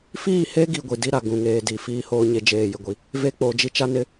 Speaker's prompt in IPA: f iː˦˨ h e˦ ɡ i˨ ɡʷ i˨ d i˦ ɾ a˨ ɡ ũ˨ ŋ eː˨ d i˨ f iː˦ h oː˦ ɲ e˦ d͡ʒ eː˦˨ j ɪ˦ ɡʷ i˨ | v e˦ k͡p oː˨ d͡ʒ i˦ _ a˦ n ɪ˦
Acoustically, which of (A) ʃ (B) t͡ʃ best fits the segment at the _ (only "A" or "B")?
B